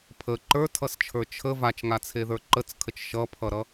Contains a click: yes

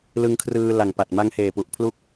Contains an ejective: no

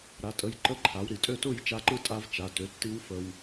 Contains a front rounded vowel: yes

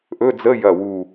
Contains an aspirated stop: no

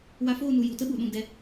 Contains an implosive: yes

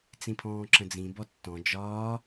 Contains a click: yes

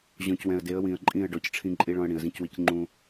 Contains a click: yes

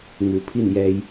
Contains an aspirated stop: yes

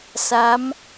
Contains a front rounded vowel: no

